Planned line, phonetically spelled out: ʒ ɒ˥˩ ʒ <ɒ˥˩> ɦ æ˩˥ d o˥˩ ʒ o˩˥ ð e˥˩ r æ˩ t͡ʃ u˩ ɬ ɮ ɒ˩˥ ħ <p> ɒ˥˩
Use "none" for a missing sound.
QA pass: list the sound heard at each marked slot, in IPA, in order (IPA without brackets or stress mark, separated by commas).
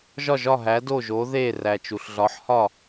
ɒ˥˩, h